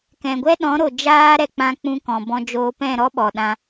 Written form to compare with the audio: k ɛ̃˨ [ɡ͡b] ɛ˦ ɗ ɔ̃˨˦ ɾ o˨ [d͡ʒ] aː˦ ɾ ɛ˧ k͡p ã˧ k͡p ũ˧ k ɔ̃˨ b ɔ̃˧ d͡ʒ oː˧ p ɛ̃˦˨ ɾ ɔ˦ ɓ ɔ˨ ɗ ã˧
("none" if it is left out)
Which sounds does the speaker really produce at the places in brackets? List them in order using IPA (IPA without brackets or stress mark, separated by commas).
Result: ɡʷ, d͡ʒ